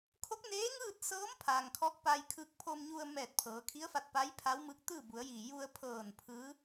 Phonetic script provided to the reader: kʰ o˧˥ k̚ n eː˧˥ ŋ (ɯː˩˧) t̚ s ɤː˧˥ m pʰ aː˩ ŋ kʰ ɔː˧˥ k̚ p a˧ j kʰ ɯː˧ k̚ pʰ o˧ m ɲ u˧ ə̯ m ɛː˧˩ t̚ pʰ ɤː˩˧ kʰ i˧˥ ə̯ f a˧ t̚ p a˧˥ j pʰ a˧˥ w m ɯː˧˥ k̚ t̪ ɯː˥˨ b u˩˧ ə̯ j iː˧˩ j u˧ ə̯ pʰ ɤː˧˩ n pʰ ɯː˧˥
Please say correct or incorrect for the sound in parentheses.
incorrect